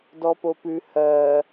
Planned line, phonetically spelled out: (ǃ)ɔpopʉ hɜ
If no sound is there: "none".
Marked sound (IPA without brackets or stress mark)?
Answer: d